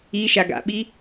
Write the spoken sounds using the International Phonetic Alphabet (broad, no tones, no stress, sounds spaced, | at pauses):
i ʃ a ɡ a̰ ɓ i